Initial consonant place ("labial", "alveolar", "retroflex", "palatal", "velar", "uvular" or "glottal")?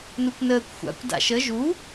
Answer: alveolar